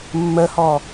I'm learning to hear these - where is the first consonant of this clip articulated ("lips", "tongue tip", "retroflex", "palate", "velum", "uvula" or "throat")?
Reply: lips